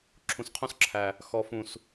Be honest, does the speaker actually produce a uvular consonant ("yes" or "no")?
yes